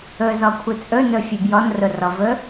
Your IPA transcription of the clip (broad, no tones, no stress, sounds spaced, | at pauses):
ɵ z ɔ kʷʰ ɨ t͡sʼ ɵ n ɵ fʲ ʉ b j ɔ n r ʊ r ɔ v ɵ